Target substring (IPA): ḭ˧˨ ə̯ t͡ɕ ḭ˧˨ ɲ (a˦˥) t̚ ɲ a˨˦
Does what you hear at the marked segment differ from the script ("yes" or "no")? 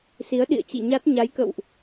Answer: no